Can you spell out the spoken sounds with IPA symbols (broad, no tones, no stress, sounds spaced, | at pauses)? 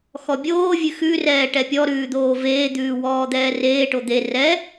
x ɔ bʲ oː vʲ ʉ x ʉ r ɛː ʈ ɛ pʲ ɔ ɾ ʉː d̪ oː v eː d̪ ʉː w ɔː d̪ ɛː r eː ʈ o d̪ e r ɛ